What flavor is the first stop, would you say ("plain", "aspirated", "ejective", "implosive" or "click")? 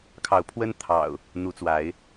aspirated